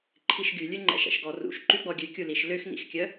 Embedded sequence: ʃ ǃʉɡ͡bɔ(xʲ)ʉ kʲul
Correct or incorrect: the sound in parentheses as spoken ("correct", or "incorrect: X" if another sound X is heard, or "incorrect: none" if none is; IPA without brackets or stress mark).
incorrect: ɡʲ